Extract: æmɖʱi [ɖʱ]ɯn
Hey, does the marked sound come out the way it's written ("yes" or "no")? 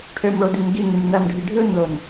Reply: yes